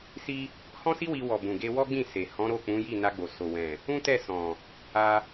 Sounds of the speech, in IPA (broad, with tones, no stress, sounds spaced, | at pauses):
s i˧ | h ɔ̃˦ s i˦ w i˧ w ɔ˨ b ũ˨ ɡ e˧ w ɔ˦ ɡ͡b ĩ˦˨ s e˨ h ɔ̃˨˦ ɾ o˦˨ k͡p ũ˨˦ j i˦˨ n a˧ ɡ͡b o˨ s o˨ w ɛ̃˨ | ũ˦ t ɛ˦˨ s ɔ̃˨ | a˧